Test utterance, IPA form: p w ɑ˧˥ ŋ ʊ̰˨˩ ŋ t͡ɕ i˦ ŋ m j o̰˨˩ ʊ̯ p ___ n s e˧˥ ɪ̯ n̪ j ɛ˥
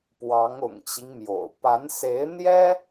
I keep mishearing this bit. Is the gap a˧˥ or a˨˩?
a˧˥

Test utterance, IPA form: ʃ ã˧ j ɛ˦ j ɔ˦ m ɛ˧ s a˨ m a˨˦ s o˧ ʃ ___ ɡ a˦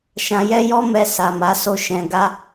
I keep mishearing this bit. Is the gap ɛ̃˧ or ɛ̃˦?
ɛ̃˧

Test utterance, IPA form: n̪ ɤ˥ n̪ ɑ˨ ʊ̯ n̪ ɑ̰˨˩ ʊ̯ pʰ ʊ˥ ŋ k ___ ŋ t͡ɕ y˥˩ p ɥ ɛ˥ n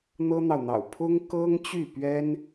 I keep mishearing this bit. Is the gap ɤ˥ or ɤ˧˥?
ɤ˥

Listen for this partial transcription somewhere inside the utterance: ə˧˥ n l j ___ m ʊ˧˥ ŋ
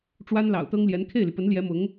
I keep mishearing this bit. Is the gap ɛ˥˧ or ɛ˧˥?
ɛ˧˥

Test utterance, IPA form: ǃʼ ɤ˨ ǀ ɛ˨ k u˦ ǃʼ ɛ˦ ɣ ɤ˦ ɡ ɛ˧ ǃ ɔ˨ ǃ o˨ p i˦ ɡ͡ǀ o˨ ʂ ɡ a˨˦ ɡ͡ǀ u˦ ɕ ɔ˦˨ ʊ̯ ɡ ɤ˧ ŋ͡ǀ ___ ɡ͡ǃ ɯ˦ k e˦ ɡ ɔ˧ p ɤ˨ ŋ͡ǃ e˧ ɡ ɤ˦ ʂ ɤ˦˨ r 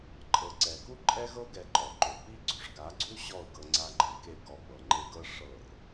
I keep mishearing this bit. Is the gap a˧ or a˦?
a˦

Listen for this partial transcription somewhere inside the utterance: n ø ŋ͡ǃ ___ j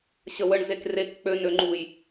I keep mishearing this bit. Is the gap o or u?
u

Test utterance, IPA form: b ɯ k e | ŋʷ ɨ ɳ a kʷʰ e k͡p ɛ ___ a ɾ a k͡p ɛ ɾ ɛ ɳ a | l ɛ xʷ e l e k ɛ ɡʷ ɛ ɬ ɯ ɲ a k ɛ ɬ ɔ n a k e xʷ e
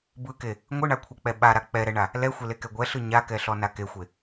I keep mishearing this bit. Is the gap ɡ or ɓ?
ɓ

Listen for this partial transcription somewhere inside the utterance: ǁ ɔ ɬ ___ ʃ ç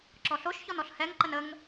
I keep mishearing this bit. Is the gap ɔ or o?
o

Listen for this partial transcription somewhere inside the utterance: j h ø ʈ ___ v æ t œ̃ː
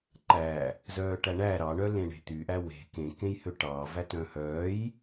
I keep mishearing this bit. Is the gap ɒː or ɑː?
ɑː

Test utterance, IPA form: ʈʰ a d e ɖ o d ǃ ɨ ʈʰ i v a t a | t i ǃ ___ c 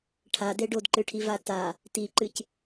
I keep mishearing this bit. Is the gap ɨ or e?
ɨ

